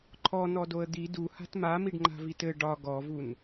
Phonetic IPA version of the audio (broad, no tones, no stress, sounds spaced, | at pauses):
ǃʰ ɔ n ɔ d o ə̯ d̪ i d u h a̤ t m a m i ɖ ŋ͡ǃ a̤ v i t ɘ ɖ ɒ ɡ ɔ v u n